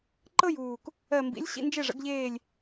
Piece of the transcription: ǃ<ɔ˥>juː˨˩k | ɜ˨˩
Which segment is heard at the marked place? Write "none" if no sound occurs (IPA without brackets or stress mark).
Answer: ɤ˥